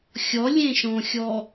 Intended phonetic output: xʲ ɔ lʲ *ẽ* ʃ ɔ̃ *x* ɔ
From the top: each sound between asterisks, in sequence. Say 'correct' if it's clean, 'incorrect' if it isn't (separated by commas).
correct, incorrect